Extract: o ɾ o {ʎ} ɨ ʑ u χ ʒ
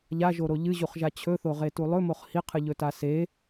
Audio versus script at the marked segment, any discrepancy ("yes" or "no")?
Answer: no